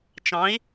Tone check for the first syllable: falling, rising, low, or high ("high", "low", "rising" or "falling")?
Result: rising